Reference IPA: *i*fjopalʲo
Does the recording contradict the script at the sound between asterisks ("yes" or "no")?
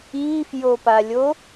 no